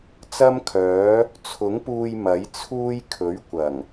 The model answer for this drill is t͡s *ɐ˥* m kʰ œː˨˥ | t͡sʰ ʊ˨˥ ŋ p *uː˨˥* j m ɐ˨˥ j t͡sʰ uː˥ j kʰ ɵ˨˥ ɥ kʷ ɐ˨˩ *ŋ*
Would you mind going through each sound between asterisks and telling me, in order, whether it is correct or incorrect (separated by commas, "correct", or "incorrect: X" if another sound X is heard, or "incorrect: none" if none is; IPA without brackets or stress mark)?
correct, incorrect: uː˧, correct